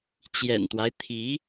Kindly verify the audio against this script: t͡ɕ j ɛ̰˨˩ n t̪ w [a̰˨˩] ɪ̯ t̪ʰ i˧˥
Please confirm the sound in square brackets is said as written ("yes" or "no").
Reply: no